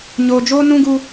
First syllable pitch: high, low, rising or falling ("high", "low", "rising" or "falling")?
low